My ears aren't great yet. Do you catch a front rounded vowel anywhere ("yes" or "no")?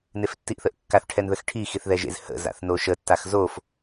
no